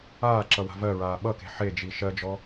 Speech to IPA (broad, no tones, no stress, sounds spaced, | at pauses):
aː ǁ ʌ w a̤ v ɜ ɹ aː ɓ ʌ k e̤ ħ e d͡ʒ i ʃ ɜ d͡ʒ ɔ